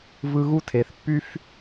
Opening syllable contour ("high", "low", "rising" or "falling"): high